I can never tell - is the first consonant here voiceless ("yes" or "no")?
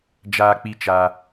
no